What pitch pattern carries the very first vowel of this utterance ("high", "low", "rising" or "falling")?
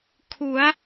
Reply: rising